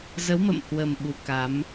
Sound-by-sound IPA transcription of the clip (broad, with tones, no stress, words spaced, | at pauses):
zə˨˦wmə̰˧˨mhwə˨˩m ɓu˨˦ka˨˦m